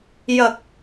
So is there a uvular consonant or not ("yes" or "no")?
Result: no